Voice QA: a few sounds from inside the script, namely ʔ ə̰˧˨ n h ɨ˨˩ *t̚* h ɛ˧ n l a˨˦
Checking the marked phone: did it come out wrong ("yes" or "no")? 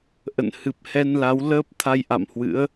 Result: yes